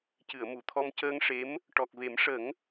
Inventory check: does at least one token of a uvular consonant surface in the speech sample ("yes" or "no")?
no